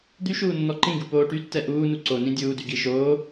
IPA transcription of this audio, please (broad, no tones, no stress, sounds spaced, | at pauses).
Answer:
d̪ y ʃ uː nː ɔ ǃ ĩ ɡ u p oː ʈ y tː ɛ ʔ uː n u ǀ o n ĩ dʲ uː d y ɡ i ʃ oː